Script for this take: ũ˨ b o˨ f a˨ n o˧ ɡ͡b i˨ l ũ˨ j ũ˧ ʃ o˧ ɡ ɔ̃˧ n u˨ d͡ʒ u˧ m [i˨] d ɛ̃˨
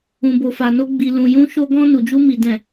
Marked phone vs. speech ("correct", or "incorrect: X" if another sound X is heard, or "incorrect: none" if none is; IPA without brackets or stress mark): correct